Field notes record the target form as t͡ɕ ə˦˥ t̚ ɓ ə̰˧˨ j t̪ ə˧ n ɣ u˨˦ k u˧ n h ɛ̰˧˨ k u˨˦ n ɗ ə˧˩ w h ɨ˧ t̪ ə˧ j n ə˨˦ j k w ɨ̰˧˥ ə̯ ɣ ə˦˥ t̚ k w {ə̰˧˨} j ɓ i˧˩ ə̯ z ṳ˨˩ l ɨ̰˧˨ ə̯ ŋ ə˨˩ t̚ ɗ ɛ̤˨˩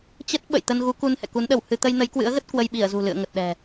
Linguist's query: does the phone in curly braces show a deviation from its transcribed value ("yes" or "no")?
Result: yes